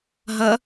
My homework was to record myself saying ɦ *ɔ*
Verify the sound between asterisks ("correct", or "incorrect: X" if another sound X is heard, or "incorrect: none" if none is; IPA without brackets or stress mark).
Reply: incorrect: ʌ